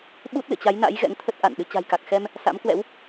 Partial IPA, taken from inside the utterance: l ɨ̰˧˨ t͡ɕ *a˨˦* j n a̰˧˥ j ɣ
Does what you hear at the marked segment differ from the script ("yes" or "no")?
no